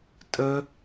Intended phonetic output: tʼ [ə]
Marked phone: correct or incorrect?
correct